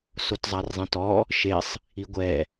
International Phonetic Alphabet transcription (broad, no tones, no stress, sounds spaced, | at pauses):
s o t zˤ a r zˤ ẽ t ɔ | ʃ e sˤ | i ɡʷ ɛ